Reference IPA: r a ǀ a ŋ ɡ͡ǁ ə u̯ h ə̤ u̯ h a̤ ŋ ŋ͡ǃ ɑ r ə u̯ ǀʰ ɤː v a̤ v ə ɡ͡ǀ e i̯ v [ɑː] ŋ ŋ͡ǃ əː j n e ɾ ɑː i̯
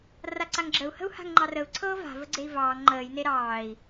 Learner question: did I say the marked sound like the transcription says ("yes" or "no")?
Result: yes